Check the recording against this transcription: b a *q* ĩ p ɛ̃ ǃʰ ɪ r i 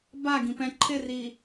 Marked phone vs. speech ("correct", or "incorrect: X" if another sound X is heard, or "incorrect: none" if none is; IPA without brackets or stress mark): incorrect: ɡ